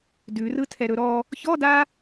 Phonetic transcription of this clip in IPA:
d ʉ r ɯ tʰ ɛ ɾ ɵ ɾ ɔ | ç ɔ d a

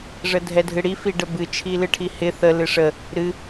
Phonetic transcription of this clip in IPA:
ʐ ə dʱ ɛ dʱ ɨ ɽ i f i ɖ ə b ɨ t͡ʃʰ i l ɨ ʈʰ i h ɪ θ ə l ɨ ʂ ə | ɾ ɨ

